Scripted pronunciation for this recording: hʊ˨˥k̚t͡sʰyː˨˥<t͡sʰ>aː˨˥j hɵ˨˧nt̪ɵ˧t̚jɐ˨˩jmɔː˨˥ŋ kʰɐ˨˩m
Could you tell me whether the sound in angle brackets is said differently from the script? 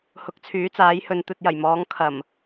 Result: yes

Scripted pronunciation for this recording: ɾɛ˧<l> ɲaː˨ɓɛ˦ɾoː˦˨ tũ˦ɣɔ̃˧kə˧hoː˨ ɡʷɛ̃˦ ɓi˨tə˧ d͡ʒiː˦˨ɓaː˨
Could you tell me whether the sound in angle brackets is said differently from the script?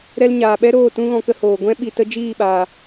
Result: no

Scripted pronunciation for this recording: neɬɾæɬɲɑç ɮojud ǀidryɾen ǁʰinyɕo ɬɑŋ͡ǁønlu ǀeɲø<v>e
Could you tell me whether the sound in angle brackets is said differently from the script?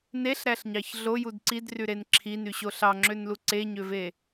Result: no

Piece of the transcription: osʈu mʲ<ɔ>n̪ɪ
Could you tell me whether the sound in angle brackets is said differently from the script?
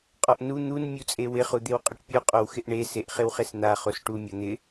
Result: no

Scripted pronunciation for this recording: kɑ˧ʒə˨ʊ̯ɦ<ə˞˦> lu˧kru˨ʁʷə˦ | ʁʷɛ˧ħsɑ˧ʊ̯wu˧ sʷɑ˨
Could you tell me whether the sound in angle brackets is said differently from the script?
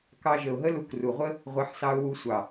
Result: yes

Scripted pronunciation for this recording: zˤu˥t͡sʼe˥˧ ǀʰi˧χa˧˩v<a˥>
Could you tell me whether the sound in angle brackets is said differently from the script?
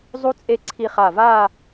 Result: yes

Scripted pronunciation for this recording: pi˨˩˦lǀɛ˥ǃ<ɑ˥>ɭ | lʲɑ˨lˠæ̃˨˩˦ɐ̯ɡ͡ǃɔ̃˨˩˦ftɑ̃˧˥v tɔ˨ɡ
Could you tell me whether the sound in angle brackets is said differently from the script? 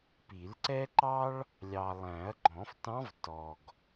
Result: no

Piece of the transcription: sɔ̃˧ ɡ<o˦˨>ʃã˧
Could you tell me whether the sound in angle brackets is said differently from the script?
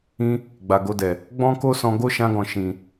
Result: yes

